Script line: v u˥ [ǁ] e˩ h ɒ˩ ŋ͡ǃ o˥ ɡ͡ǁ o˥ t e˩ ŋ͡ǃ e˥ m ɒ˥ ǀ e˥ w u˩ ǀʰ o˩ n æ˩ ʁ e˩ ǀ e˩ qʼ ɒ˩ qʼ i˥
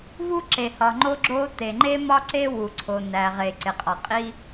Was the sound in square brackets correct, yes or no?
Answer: yes